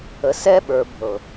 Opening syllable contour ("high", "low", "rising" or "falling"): low